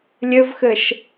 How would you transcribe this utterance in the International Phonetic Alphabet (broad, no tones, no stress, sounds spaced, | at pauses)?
lʲ ɘ v x ɘ ʃ